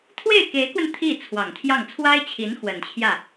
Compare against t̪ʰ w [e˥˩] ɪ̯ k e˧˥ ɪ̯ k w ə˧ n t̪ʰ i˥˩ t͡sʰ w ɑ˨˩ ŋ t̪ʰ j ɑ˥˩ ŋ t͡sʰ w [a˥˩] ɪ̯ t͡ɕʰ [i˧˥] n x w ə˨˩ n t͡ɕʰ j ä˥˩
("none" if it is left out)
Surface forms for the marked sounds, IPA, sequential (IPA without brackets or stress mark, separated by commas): e˥˩, a˥, i˧˥